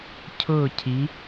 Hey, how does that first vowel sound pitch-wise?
falling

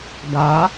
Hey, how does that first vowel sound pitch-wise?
rising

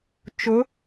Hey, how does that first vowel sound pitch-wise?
rising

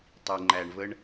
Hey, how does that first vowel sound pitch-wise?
low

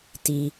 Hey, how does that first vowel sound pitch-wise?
low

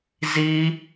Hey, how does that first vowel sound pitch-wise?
high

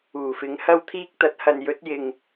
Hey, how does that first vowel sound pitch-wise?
low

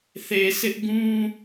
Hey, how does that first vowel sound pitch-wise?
low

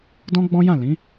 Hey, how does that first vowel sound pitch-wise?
high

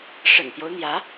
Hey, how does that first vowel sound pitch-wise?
low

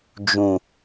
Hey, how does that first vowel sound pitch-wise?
low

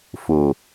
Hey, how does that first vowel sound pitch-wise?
low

